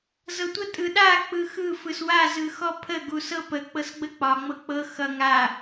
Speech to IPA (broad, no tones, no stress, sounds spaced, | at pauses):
z ɤ tʷ ə tʼ ɯ ɗ a k͡p ɯ x ɯ f ɯ s w a z ɯ x ɔ pʰ ə ɡ u s ɤ p ə k͡p ɤ s ɡ͡b ə k͡p ɒ ŋ͡m ɤ k͡p ɤ x ʌ ŋ a